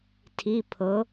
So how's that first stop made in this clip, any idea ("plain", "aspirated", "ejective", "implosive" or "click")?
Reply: aspirated